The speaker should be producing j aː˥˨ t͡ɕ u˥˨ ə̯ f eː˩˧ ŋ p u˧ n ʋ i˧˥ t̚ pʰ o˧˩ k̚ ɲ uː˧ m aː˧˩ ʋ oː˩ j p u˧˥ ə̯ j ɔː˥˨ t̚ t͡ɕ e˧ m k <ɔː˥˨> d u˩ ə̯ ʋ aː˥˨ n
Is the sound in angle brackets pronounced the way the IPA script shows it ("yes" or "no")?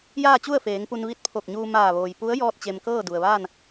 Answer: no